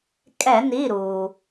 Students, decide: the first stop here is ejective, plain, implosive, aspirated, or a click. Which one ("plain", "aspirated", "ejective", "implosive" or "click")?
ejective